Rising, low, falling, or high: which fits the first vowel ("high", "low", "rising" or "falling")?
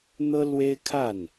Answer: high